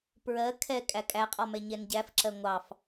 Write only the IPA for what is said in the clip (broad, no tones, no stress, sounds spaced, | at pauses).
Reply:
p ɹ ɜ kʰ ɛ kʼ æ kʼ æ qʼ ɔ m ɛ ɲ ɛ n ɟ æ f ǁ ɜ ŋʷ ɑ f